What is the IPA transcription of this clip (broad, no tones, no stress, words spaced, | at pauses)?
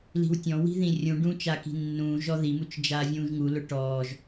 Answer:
li̤wtʲɔ̃wi̤ðĩ rʲũɖũː t͡ʃaki̤nːũː ʒɔðimut͡ʃ d͡ʒaːvʲũːʒŋu lʊʈɔːʒ